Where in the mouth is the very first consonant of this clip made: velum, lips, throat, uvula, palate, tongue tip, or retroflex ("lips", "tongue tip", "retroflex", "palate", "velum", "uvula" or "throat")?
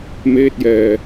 lips